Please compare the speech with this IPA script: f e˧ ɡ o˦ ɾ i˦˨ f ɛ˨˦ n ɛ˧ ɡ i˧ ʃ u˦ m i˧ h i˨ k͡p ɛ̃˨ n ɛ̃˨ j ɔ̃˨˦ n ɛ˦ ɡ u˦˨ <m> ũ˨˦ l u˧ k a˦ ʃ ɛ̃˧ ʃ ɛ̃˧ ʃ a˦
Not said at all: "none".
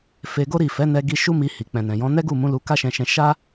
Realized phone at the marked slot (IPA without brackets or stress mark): m